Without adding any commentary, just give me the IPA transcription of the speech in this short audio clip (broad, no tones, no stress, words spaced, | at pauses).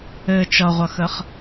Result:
ɘ t͡ʃʌʁʷʌxəχ